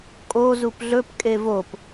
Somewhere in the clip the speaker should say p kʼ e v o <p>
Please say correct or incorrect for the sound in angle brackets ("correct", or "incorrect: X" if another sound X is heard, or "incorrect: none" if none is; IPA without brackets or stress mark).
correct